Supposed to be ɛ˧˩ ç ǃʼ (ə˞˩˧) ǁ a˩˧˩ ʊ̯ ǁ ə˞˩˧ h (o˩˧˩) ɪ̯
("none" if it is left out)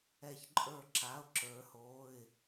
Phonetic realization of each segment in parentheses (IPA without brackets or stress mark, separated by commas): ə˞˧˩, o˩˧˩